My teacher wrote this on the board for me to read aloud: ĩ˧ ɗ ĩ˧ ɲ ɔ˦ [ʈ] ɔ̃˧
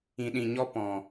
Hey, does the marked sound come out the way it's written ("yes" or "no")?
no